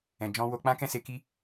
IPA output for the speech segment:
ɛ̃˨d͡ʒɔ̃˧wo˧ k͡pã˦kɛ̃˦se˧ ki˦

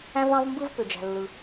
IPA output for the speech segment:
æ̃˥ vɑ̃˥vmbɯ˥v pø˩d͡ʒæ̤˩ lːɯ˩

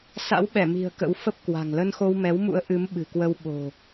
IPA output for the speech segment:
sa̰˧˥wɓɛ˧˩mi̤˨˩ə̯ kə̰˧˥w fə˦˥p̚ kwa̤˨˩ŋ lə˧nxo˧wmɛ˨˦wmṵ˧˥ə̯ ʔɨ˨˦mɓɨ̤˨˩kwə˧w ɓo̤˨˩

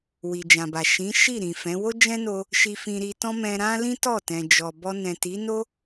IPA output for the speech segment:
wi˨d͡ʒã˨ba˨ ʃĩ˨˦ʃi˦˨ ɾĩ˨ fɛ̃˨˦ wo˦d͡ʒɛ̃˦no˧ | ʃi˧fĩ˧ɾi˧tɔ̃˦ mɛ̃˧ɾã˦lĩ˦ tɔ˦˨ tɛ̃˨ d͡ʒɔ˨bɔ˧ nɛ̃˨ti˨˦no˦

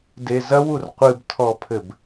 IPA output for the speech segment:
dezɐwur qʷɨbtʰɔpʰɘb

